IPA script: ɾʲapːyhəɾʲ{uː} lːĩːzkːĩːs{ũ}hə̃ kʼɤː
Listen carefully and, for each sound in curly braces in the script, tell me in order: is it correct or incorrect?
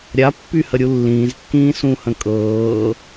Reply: incorrect, correct

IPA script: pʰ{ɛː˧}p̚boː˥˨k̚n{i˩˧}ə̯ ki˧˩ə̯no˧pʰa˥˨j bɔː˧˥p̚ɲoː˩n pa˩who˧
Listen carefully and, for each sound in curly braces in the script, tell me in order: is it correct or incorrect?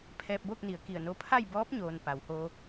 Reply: correct, correct

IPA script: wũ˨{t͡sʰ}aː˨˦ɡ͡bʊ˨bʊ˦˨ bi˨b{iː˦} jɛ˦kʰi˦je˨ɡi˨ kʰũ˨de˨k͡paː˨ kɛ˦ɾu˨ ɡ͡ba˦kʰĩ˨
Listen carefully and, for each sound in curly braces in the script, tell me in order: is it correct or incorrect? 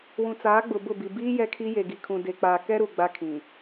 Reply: incorrect, correct

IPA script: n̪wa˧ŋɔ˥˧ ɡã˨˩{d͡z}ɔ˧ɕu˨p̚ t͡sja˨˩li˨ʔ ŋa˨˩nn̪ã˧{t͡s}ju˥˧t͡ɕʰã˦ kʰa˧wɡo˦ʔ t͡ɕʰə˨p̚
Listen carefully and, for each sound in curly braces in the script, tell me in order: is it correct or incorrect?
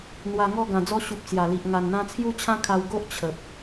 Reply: correct, incorrect

